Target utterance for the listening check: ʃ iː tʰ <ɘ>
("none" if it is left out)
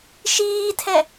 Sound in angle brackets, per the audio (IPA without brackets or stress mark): ɛ